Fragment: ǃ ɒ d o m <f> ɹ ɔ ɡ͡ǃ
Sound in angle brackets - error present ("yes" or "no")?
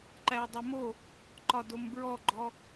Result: yes